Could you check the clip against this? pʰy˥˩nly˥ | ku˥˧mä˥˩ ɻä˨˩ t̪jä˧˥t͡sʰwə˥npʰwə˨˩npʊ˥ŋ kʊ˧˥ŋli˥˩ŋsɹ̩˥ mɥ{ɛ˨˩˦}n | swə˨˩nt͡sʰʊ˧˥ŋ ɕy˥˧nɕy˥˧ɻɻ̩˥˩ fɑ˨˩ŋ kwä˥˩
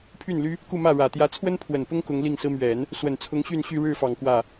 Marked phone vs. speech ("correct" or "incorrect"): correct